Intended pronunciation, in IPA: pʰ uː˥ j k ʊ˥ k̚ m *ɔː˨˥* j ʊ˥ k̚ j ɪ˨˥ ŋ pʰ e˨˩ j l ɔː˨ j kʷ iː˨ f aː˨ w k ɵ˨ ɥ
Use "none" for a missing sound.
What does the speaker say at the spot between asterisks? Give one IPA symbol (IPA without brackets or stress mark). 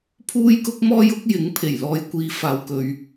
ɔː˥